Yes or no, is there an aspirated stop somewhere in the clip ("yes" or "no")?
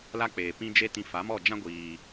no